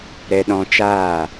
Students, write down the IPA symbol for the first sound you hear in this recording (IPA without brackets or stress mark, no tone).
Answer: ɾ